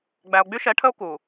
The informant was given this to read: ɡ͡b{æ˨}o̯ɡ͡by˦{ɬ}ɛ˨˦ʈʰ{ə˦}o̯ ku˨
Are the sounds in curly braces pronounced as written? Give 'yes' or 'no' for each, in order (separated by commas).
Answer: yes, no, yes